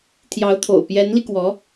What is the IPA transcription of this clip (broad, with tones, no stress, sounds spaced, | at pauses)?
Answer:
t̪ʰ j ɑ˧˥ ʊ̯ t̪ʰ o̰˨˩ ʊ̯ p j ɛ˧˥ n l i˧ k w ɔ˧˥